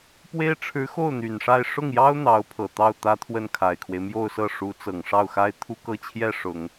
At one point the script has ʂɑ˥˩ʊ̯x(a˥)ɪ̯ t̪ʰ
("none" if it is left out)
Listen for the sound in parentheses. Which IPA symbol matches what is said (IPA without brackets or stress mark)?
a˥